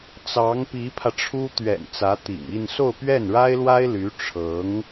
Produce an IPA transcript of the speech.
t͡s ɑ˧˥ ŋ p i˧˥ pʰ ä˧ ʈ͡ʂʰ u˥ t̪ ɥ ɛ̰˨˩ n t͡s ä˧˥ t̪ ḭ˨˩ ŋ i˥˧ n s o˥˧ ʊ̯ p ɥ ɛ˥˩ n ɻ a˥ ɪ̯ l w a˥ ɪ̯ l y˧˥ ʈ͡ʂʰ ɤ˧˥ ŋ

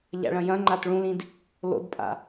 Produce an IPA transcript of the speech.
ʎ a̰ ɭ ɐ̃ j ɐ̃ ŋ͡ǃ a t ɭ ũ l ĩ d | l o̰ d pʼ a̰

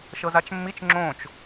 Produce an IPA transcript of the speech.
ʃ ɤ z a t͡ʃ mː i t͡ʃ ŋ͡ǁ õ t͡ʃ

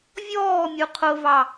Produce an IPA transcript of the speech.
vʲ ɔː mʲ u qʰ ʊ v ɑ

